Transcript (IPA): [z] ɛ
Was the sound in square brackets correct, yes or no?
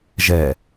no